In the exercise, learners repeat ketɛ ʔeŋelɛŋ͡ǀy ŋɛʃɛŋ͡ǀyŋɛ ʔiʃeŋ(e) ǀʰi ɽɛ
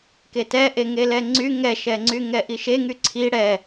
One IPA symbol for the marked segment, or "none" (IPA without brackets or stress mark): y